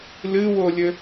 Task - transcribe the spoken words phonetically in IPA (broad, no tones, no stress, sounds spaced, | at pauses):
l ɨ w o lʲ ɘ